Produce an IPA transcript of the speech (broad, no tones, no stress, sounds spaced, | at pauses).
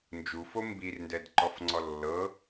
n d͡ʒ u f o m b i r n d ɛ d ǃ ɔ f ŋ͡ǀ ɔ lː ɤ